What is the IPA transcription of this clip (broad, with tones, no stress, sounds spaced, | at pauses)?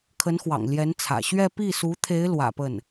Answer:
kʰ ə˧˥ n x w ɑ̰˨˩ ŋ l j ɛ˧˥ n t͡sʰ ä̰˨˩ ɕ ɥ ɛ˥˧ p i˥˩ s u˧˥ t̪ʰ e˧˥ ɪ̯ l w ä̰˨˩ p ə˥˩ n